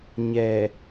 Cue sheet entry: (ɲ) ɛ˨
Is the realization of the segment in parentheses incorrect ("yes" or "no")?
no